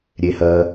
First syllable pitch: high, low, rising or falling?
low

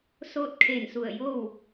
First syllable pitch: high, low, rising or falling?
falling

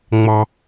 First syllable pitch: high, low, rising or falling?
high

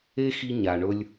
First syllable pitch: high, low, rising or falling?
high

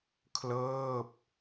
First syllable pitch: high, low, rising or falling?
falling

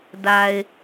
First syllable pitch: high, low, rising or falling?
low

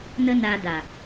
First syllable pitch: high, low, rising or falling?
high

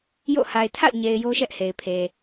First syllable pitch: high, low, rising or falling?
falling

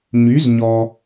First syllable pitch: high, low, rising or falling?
rising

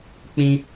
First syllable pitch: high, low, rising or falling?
high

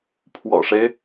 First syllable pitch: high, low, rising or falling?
low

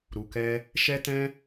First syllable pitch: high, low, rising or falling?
low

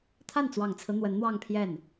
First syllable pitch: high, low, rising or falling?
falling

